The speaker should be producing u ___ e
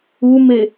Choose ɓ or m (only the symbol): m